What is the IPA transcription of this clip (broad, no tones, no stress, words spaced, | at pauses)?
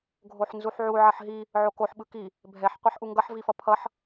ɡʱoħnzuħʕu ʕʌħɦi | ʕokoħ ɓɯki | bʱɛħ qʷɛħʔuŋɡʌħ vifʌpʰʌħ